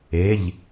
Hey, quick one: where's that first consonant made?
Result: palate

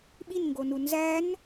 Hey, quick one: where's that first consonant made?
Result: lips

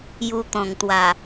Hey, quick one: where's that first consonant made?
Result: palate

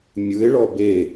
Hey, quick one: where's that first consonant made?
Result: lips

